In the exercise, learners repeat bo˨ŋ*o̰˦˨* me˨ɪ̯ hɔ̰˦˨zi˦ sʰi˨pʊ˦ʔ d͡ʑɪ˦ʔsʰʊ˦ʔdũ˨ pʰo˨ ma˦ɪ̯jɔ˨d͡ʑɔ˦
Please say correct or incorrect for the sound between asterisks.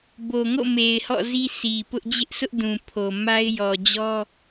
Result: correct